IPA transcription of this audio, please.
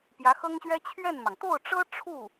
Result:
p j ä˧˥ x ɤ˥ ŋ ɕ ɥ ɛ˥ t͡ɕʰ ɥ ɛ˥˩ n m ɑ˩ ŋ t̪ o˥˩ ʊ̯ ʈ͡ʂ ɤ˥ ʈ͡ʂʰ u˥˩

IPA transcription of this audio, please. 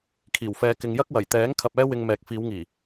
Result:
kʰ iː˨˩ w f ɛː˨˧ k ɪ˨˧ ŋ j ɐ˥ k̚ w ɐ˨˩ j t̪ ɛː˨˥ ŋ kʰ ɐ˧ p̚ ɛː˥ w ɪ˧ ŋ m ɛː˨ k̚ f iː˨˧ w ŋ iː˨˩

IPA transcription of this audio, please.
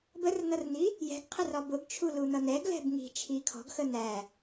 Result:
b ə r n̪ ʌ r n̪ i | j ɛ̤ ɡ qʰ ə r ɒ b ʊ ɡ t͡ʃʰ u l u n̪ ʌ n̪ ɛ ɡ l ɛ̤ b ŋ i̤ t͡ʃʰ i kʰ ɔ̤ ɡ x ə n̪ æ

